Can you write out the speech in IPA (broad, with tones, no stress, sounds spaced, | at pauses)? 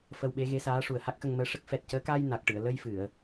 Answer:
f ə˧ w ɓ e˧˥ ɣ e˧˥ s aː˧˥ ʂ u˨˩ ə̯ h a˦˥ k̚ x ə˧ ŋ m əː˧˥ ʂ ə˦˥ k̚ f ɛ˨˩ t̚ c əː˧˥ k aː˧ j n a˨˩ k̚ ʈ ɨ˨˩˨ ə̯ l ə˧ j f ɨ˨˩˨ ə̯